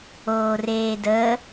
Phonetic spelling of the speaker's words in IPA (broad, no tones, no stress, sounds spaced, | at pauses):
oː r eː d əː